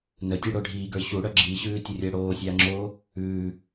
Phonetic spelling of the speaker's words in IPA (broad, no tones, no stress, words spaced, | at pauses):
nətʲʉɽo ɖʱiːɡə˞ ɕuɽœ ɡ͡ǁiːɕʉːtʲorʲəː ɽoːsʲaːŋ͡ǁoː | ʉː